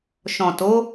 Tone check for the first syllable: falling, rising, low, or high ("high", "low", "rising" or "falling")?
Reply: low